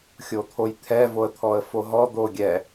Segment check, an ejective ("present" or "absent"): absent